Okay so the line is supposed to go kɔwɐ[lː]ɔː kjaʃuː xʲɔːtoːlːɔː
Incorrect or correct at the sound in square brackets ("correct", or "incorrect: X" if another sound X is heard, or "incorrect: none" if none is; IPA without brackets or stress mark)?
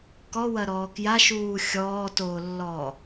incorrect: ɾ